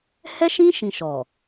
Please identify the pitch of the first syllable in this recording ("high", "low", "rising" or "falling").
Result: high